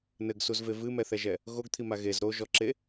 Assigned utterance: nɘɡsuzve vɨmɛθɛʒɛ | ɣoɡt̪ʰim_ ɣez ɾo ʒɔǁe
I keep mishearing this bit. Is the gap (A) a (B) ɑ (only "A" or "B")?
A